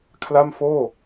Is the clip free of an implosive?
yes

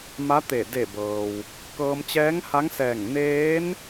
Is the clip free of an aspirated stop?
yes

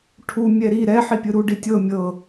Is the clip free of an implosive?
yes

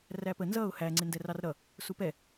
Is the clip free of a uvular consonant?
yes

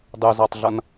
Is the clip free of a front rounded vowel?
yes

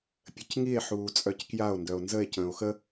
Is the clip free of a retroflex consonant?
yes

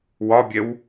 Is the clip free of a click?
yes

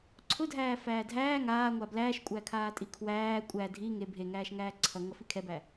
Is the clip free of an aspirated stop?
no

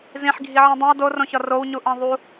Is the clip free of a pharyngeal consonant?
no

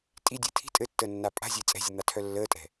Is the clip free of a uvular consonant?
yes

